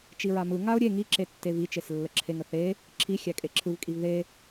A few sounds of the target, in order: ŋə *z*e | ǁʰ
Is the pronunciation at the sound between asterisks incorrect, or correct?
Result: incorrect